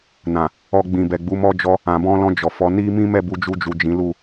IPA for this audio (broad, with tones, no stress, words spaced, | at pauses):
nã˨ | ɔ˧ɡ͡bĩ˨bɛ˨ɡ͡bu˨˦ mɔ˦d͡ʒɔ˦ | ã˨bɔ̃˧lɔ̃˧ d͡ʒɔ˨fɔ˨˦ni˦ mĩ˦mɛ˦˨bu˧ d͡ʒu˧d͡ʒu˨ d͡ʒĩ˨˦ lu˦˨